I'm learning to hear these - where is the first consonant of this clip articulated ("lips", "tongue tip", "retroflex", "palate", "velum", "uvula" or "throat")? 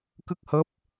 velum